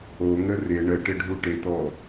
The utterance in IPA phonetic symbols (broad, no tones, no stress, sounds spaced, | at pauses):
o ŋ ə r ɪ ɳ ə ʈ ɪ ɖʱ u ʈ ɪ t̪ ɔ